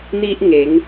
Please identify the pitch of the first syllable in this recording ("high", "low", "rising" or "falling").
high